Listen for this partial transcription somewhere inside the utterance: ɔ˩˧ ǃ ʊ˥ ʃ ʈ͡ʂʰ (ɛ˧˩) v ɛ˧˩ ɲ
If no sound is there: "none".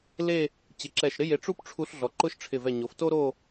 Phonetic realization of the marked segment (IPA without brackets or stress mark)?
ɪ˧˩